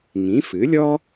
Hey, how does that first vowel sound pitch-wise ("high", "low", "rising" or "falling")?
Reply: rising